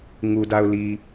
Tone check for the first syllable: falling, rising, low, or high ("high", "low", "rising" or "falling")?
low